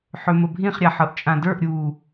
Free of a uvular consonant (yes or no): no